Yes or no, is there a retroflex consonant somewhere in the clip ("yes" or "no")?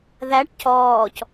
yes